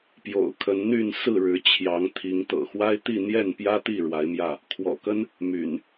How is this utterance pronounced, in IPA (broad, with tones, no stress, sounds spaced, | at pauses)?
p j o̰˨˩ ʊ̯ kʰ ə˨˦ n n̪ y˥˨ n s ɹ̩˥˨ ɻ ɻ̩˨˦ t͡ɕʰ j ɑ˨˦ ŋ t̪ʰ i˨˦ ŋ t̪ ɤ̰˨˩ x w a˦ ɪ̯ t̪ i˥˨ n̪ j ɛ˥˨ n p j ä˦ t̪ i˥˨ ɻ w a˨˦ ɪ̯ m j ä˥˨ | kʰ w ɔ̰˨˩ k ə˦ n | m y̰˨˩ n